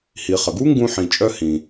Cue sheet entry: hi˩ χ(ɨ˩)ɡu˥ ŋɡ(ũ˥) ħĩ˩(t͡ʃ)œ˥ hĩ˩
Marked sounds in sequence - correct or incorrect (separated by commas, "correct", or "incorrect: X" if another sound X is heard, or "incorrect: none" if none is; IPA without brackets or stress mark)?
incorrect: ə˩, correct, incorrect: t͡ʃʼ